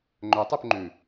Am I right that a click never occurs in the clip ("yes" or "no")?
no